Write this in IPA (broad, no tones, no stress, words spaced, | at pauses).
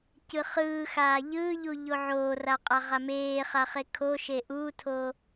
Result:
cɯχɯːxaː ʎɯːʎu ʎoʕoːra qʼaʁameːχa χekʰoʃe ʔuːtʰo